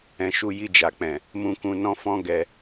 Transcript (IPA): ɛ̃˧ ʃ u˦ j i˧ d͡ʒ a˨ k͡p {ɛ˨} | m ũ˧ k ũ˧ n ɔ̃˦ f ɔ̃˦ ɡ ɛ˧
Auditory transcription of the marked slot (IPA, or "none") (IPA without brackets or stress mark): ɛ̃˨